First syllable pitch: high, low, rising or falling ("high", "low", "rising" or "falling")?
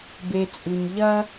low